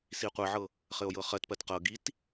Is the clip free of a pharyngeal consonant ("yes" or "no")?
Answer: no